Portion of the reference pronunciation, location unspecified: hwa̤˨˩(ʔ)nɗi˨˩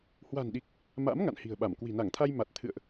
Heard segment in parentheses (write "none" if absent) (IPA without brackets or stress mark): none